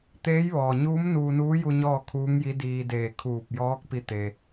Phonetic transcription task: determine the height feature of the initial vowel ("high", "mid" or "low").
mid